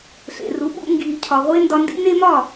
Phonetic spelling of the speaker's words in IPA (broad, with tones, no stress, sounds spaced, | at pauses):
ɬ ḛ˩ r u˩˥ ɓ ṵ˧ ŋ ɡ iː˩ cʰ ɒ˩ ʁʷ e˥ n d ɒ˧ n d ḭ˥ n e˥ m ɒ˥˩